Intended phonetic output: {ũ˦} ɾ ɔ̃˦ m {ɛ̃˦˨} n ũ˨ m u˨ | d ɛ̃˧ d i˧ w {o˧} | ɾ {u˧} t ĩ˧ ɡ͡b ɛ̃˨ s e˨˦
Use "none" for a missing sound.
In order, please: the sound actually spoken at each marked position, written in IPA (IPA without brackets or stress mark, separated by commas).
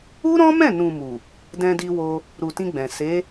u˦, ɛ̃˦˨, o˧, u˨